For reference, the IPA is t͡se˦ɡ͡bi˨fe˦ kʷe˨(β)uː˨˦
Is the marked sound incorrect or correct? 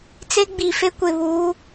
correct